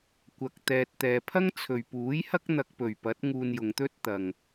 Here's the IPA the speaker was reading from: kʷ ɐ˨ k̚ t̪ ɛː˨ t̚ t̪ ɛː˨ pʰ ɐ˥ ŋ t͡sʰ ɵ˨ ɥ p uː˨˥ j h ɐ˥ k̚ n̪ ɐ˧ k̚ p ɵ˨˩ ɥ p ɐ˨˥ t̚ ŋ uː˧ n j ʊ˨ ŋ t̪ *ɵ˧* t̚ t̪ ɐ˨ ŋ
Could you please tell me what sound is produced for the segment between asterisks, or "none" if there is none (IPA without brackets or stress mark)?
ɵ˥